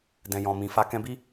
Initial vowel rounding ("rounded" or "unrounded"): unrounded